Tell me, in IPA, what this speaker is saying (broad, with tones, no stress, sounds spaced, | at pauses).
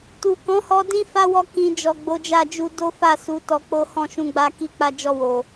t u˨ k ɔ̃˨˦ h ɔ˧ d ĩ˦ f a˦ w ɔ˧ k ĩ˨ d͡ʒ ɔ˨ ɡ͡b o˨˦ d͡ʒ a˦˨ d͡ʒ u˧ d o˦ f a˦˨ s u˨˦ t ɔ˧ k͡p o˦ h ɔ̃˦˨ ʃ ũ˧ ɡ͡b a˧ k i˧ k͡p a˧ d͡ʒ ɔ˧ w o˨